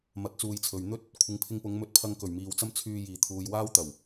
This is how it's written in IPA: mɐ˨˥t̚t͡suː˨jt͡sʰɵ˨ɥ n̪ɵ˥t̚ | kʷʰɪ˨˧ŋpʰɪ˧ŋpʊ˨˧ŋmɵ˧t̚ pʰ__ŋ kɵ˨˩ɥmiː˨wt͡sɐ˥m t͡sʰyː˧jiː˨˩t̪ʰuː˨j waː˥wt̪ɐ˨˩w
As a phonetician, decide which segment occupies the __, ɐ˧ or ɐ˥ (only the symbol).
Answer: ɐ˧